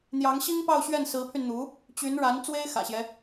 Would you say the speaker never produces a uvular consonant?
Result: yes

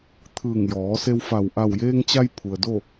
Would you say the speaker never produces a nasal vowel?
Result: yes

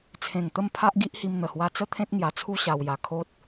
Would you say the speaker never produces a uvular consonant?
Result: yes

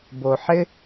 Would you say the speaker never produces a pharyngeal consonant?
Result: no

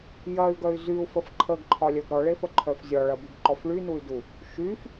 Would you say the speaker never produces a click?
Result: no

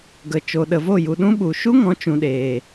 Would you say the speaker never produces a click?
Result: yes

